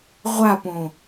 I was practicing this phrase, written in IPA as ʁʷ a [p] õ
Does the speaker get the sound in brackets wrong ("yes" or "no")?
no